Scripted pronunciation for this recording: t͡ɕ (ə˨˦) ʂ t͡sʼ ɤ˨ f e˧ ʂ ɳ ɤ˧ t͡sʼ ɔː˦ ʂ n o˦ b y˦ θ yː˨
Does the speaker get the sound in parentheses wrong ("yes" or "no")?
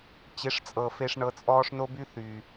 yes